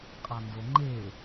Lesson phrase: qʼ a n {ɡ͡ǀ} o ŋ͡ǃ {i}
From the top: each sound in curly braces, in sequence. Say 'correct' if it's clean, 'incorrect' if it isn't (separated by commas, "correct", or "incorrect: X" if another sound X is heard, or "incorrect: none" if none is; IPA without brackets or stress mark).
incorrect: d, incorrect: e